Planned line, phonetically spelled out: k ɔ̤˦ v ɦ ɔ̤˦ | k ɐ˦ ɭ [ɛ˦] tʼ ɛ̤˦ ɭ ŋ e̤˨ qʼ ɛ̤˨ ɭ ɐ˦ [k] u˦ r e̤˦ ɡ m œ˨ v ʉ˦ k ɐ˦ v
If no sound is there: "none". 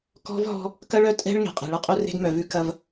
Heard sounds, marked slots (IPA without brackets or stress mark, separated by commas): œ˦, qʼ